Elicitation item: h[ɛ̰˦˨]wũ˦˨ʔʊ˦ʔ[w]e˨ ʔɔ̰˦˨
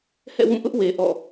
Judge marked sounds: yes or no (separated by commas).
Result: yes, yes